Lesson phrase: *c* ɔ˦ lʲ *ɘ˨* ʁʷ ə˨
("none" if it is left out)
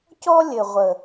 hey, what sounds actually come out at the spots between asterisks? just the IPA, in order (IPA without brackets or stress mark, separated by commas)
c, ɘ˨